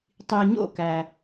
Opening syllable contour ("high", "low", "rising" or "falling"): low